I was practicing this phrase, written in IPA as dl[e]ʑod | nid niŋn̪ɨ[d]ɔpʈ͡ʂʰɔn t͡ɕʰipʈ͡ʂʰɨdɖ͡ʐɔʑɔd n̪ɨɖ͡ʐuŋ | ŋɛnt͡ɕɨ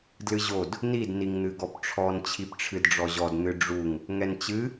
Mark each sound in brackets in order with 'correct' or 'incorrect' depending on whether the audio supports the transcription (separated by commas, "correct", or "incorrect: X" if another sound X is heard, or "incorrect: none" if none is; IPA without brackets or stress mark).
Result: incorrect: ɨ, incorrect: ɡ